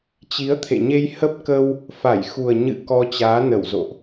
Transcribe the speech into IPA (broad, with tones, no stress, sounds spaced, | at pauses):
t͡ɕ i˨˦ ə̯ t̪ʰ ḛ˧˨ ɲ e˧ j h ə˦˥ p̚ k ə˧ w | f a˧˩ j x u˨˩ ə̯ ɲ ɨ̰˧˨ k ɔ˧ t͡ɕ aː˨˦ n ə˧˩ w z o̰˧˨ ʔ